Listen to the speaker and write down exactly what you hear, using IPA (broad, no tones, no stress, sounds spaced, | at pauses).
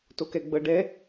t o k ɛ ɡ͡b ɤ ɖ ɛ